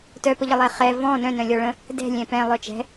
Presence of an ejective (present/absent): absent